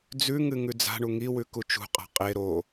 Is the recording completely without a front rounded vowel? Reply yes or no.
yes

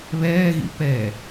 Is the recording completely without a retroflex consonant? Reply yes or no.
yes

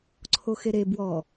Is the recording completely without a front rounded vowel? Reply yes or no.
yes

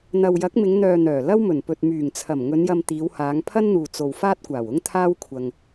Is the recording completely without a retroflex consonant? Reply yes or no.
yes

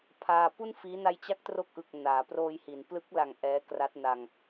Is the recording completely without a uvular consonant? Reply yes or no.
yes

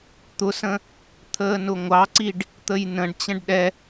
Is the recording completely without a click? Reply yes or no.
no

